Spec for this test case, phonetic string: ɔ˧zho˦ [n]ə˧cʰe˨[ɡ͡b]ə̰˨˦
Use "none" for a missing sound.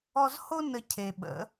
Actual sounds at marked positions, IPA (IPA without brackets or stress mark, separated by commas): n, ɓ